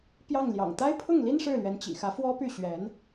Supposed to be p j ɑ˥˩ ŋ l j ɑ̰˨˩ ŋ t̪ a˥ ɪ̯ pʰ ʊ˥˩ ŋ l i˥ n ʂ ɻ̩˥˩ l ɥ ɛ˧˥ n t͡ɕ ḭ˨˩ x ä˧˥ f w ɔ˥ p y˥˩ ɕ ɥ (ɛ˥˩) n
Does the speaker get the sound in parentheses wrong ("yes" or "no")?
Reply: yes